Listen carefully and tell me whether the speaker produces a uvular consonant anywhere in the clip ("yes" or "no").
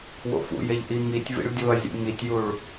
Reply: no